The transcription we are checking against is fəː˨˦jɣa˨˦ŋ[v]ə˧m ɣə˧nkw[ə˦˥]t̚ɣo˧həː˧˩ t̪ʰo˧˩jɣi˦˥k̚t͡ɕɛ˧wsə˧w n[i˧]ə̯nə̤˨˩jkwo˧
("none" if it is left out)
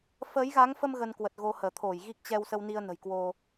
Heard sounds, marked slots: f, ə˨˩, i˧

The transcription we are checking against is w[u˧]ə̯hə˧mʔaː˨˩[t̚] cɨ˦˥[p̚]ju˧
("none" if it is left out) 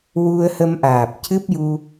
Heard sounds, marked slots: u˧, p̚, p̚

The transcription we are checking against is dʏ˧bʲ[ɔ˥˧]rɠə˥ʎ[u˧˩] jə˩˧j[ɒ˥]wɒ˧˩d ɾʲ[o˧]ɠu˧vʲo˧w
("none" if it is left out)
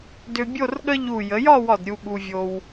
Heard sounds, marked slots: o˥˧, u˧˩, ɒ˥˧, u˧

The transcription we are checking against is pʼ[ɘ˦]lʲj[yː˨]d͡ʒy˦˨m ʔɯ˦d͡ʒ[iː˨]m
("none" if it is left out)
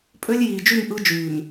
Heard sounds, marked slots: ø˦, iː˨, yː˨

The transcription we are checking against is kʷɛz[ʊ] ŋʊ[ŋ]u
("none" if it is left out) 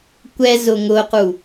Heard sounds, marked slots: ʊ, q

